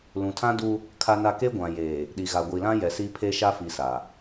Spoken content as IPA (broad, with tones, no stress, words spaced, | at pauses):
lũ˨tʰã˦du˦ | kʰa˦na˦ ke˦ɡʷã˨jeː˨ | ɗi˨ɣa˨ɡʷi˨ lã˦ jɛ˨si˦pʰe˦ ʃa˦fi˨ sa˨